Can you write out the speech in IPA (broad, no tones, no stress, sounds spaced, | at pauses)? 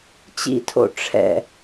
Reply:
t͡ɕ ḭ tʰ o̰ ʈ͡ʂʰ ɛ̰